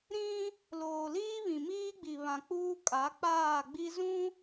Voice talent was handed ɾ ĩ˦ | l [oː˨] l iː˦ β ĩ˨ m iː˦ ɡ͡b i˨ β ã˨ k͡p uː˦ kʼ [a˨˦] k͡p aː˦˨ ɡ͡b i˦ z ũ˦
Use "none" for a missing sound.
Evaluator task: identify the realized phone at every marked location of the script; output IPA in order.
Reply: oː˨, a˨˦

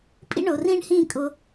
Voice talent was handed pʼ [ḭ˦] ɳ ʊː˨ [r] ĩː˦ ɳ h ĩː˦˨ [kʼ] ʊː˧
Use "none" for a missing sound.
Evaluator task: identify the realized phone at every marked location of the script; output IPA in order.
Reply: ḭ˦, r, kʼ

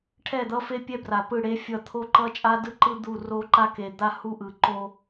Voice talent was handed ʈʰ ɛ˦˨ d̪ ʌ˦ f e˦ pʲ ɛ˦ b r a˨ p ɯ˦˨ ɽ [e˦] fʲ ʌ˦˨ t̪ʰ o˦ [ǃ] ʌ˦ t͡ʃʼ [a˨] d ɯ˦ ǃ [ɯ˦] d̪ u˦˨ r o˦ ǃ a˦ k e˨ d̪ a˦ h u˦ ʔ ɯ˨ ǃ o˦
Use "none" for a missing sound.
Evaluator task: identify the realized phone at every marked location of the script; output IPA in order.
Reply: e˦, ǃ, a˦, ɯ˦

